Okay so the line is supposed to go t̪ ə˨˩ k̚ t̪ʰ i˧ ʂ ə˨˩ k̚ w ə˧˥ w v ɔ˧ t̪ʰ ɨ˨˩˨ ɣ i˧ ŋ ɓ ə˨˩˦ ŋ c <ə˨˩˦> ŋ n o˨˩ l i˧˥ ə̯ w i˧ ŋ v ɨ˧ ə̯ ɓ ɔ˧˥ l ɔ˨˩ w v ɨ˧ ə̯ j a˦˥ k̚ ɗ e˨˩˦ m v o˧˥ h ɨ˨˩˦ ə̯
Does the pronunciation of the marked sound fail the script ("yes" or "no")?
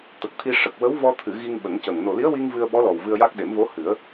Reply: yes